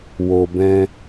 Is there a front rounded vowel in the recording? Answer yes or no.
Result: no